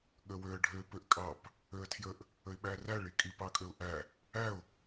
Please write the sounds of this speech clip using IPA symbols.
ɠ ə w ø ə̯ ɖʱ ø p ø ʔ kʼ ɑ p | ø ə̯ tʰ j ə ʔ | ə ɪ̯ ɓ æ r æ ɭ i kʼ i p ɑ kʼ ø ʊ̯ ʔ æ | æ ʊ̯

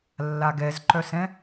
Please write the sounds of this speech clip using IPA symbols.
lː a ɡ ɛ z ǃ œ s ɛ̃

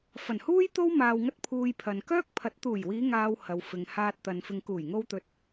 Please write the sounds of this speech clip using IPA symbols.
f ɐ˨˩ n h uː˥ j t̪ o˥ w m aː˧ w ŋ ɐ˥ t̚ pʰ uː˨ j pʰ ɐ˨ n k œː˥ k̚ pʰ ɐ˨˥ t̚ t̪ uː˨˩ j w iː˨˧ ŋ aː˨ w h ɐ˨˧ w f ɪ˨ ŋ h aː˧ t̚ t̪ ɐ˨ n f ɪ˨ ŋ k uː˨˩ j ŋ o˧ w t̪ ɵ˨ t̚

